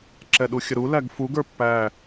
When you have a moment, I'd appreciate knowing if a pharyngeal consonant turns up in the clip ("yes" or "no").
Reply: no